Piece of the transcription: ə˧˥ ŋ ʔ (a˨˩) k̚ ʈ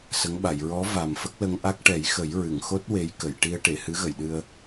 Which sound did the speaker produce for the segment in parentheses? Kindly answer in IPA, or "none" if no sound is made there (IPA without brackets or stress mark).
a˦˥